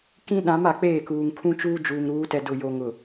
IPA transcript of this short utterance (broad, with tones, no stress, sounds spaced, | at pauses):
k ĩ˦ ɗ ã˨˦ m a˨ k͡p eː˦˨ k uː˨ ŋ kʰ ũ˦ t͡ʃ uː˦ d͡ʒ uː˨ ŋ ɾ uː˨˦ t ɛ˨ d ʊ˨ j o˨ ŋ ʊ˨